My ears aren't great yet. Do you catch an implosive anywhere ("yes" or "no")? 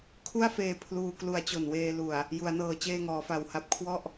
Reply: no